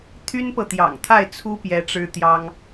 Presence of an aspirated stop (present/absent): present